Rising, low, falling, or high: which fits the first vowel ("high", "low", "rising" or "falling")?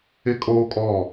high